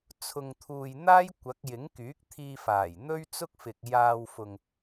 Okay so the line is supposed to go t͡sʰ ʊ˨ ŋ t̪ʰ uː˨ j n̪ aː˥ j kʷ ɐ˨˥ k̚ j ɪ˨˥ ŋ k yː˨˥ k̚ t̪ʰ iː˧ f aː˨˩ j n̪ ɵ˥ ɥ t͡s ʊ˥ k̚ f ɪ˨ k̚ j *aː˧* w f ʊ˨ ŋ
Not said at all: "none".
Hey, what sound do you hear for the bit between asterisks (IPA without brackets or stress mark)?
aː˧